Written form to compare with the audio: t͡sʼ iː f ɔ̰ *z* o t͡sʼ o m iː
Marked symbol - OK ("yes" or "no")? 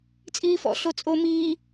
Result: no